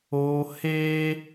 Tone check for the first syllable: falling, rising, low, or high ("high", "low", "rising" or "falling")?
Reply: high